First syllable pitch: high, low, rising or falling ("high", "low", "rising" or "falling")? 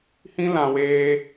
high